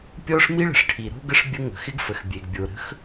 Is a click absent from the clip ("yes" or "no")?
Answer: yes